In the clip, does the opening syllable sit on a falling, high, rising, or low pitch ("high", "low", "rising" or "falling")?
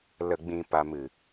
low